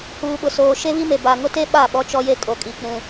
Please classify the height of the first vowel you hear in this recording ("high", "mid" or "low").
high